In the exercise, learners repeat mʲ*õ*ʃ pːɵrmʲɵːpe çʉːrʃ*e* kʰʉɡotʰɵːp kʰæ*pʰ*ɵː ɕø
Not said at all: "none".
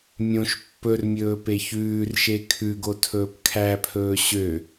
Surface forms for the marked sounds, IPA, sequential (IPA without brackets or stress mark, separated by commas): õ, e, pʰ